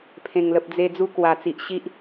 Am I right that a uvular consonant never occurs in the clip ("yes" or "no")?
yes